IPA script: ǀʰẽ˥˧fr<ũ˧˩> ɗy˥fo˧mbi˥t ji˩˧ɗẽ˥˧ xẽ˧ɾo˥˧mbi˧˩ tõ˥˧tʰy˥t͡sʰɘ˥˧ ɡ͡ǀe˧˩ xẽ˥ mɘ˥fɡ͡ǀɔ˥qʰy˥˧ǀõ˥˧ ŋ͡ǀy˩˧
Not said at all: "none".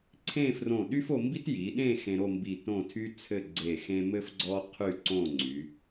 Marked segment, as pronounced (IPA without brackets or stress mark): õ˧˩